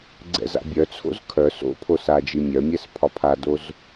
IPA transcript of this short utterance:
ɡ͡ǀ ɛ̰ z a̰ bʲ œ t͡sʰ o̰ z kʰ œ s o̰ pʰ o s a d͡ʒ i mʲ œ mʲ ɛ s pʰ ɒ pʰ a d o z

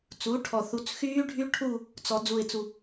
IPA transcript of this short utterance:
t͡s uː˩˥ ʈʰ ɔ˨˩ θ u˩˥ t͡s x yː˦˥ ɖʱ y˦˥ ʈʰ uː˦˨ | t͡s ɔ˩˧ d͡z u˨˩ ɪ̯ t͡s u˨˩

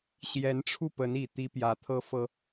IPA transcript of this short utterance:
ɕ j ɛ˧˥ n ʈ͡ʂʰ u˥˩ p ə˧˥ n i˨˩ t̪ i˥ p j ä˧˥ t̪ʰ ɤ˥ f ɤ˥

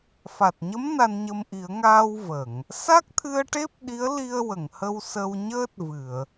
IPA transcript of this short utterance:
f a˨˩ t̚ ɲ ə˧˥ m n a˧ n ɲ ə˧ m ʔ i˨˩˦ ə̯ ŋ aː˧ w v ə˨˩˨ ŋ | s a˦˥ k̚ t̪ʰ ɨ˧ ə̯ ʈ e˦˥ p̚ ɗ i˧˥ ə̯ l i˧ ə̯ w ə˨˩˨ ŋ h ə˧ w s ə˧ w ɲ əː˦˥ t̚ v ɨ˨˩˨ ə̯

